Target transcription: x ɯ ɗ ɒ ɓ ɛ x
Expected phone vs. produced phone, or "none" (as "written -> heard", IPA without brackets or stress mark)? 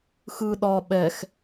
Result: none